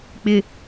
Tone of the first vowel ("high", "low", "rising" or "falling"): low